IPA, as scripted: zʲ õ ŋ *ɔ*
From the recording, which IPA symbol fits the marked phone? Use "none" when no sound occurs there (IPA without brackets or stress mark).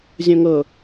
ɤ